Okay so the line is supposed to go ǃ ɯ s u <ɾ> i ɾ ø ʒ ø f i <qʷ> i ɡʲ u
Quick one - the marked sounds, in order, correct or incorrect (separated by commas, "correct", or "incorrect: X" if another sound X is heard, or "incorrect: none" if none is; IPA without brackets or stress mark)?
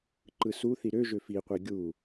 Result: incorrect: θ, correct